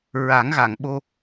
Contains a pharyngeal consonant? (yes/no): no